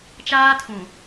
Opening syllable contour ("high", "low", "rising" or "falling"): high